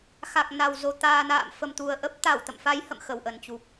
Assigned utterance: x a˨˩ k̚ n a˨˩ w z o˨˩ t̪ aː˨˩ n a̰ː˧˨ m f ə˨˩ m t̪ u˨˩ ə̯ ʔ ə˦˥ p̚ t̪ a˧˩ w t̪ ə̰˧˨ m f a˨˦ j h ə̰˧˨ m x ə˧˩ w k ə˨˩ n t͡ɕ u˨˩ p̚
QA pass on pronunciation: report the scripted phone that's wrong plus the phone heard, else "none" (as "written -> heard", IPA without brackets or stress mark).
k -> ʔ